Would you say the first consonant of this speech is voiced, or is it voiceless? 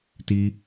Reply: voiceless